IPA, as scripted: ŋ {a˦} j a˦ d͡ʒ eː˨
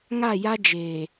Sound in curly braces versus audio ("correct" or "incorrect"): incorrect